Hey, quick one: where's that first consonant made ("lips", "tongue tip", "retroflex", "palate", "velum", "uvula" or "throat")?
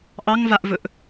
throat